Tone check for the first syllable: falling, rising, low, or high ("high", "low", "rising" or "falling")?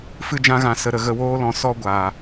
high